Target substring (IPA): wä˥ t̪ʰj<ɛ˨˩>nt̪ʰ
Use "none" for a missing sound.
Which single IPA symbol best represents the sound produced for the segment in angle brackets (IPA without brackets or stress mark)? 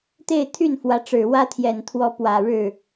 ɛ˨˩